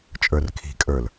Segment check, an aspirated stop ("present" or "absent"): present